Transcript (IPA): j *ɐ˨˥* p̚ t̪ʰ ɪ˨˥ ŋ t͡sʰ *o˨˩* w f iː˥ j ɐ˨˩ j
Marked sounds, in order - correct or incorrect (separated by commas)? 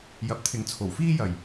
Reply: correct, correct